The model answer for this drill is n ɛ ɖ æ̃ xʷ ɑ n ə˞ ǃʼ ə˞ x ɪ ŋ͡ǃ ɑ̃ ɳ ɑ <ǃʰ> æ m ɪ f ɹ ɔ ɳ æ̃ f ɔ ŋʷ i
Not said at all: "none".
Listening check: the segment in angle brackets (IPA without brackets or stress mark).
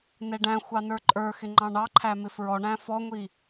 ǃʰ